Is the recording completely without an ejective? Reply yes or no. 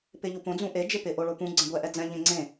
yes